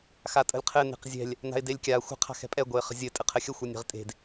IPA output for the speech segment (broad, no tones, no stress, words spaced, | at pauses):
xatʼə̤lʲqʰɘ ne̤qzʲɛ̤lʲ | na̤ɪ̯delʲkʲa xʷə̤ qʰa̤xɛ̤pʼɛ ɡʷɛɪ̯χə̤zʲɘ tʼɘqʰɘxʲə xʷɛnʲe̤ʁtʼe̤d